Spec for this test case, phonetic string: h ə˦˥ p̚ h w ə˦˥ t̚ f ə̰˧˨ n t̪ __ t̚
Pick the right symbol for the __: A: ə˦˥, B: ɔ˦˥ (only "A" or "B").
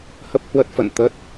A